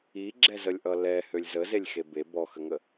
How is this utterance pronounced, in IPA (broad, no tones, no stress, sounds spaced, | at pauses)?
i ɡ͡ǁ ɛ z ə lʲ ʔ ʌ l ɛ h ø lʲ z ə z e lʲ x e b e b ɔ x ə ŋ ə